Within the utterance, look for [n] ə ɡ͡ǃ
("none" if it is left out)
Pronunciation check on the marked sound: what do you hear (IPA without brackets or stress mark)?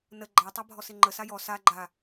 n